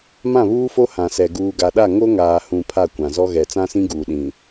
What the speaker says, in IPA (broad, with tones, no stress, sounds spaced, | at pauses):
m ã˦˨ β uː˦ f o˦ h ã˨ s ɛ˨ ɡ uː˨ ɡ a˨ ɗ a˦˨ ŋ o˦ ŋ aː˨ h ũ˨ pʰ a˦˨ kʷ ã˨ z ɔ˦ ɣ ɛ˨ t͡s ã˦ s ĩ˦ ɡ uː˨ ɗ ĩ˨